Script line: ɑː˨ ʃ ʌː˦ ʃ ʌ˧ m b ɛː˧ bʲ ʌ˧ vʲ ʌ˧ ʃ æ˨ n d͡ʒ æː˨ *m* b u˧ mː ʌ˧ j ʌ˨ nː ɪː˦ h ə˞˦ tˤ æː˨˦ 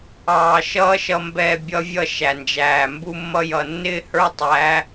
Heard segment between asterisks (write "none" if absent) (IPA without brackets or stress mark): m